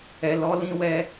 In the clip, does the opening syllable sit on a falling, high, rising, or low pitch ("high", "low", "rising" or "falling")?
low